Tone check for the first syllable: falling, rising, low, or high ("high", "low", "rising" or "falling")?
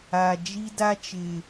low